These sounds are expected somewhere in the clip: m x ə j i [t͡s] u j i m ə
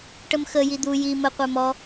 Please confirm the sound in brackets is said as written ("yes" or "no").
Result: no